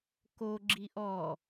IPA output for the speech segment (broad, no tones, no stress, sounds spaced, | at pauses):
k o ɡ͡ǁ i ʔ ɔ